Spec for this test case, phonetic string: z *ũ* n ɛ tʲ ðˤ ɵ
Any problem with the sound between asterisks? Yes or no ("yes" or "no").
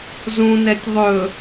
no